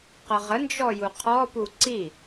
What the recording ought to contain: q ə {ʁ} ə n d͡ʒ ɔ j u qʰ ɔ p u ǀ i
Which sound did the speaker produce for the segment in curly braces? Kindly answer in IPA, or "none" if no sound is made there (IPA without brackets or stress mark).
ʁ